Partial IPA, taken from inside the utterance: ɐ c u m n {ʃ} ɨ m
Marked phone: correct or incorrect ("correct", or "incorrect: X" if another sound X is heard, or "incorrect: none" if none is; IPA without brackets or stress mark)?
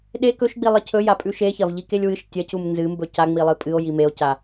incorrect: z